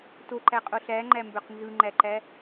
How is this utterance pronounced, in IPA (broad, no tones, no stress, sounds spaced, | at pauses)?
t o ǃ æ qʼ o ɬ æ ŋ͡ǃ æ m b ø q n z ɯ ŋ͡ǃ æ ǃ æ